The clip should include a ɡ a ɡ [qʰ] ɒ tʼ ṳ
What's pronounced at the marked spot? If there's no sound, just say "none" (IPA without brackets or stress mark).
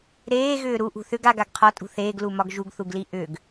qʰ